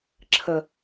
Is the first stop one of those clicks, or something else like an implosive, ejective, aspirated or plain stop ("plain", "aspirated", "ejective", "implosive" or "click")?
click